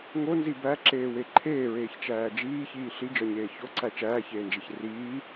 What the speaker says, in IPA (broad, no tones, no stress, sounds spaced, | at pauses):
ŋ o n z i b æ ǁ eː w e ǃʰ eː ɹ eː ç t͡ʃ æː d͡ʒ iː ç iː ɬ i d͡ʒ ɒ ɲ eː ç o ǀ æ t͡ʃ æː ç eː n d͡ʒ e ç r iː